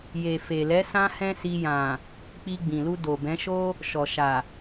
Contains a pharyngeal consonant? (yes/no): no